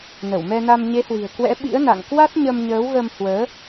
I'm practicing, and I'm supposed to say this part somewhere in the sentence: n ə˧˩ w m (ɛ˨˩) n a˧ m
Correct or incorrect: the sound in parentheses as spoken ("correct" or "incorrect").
incorrect